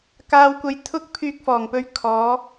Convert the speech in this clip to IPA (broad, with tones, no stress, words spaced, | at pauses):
kaː˨wkʷɐ˨jt̪ʰʊ˧k̚ pʰyː˧k̚fɔː˨˩ŋpɵ˧ɥ kʰɔː˨˧